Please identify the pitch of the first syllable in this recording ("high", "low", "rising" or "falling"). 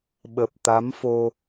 low